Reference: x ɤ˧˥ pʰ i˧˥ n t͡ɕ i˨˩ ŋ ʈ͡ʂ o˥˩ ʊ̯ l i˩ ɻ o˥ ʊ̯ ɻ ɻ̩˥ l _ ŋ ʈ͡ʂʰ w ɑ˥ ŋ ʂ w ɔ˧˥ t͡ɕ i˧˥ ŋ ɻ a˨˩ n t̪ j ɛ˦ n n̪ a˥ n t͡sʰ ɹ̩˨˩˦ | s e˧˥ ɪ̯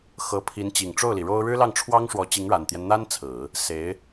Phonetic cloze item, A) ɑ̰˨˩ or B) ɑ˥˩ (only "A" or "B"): B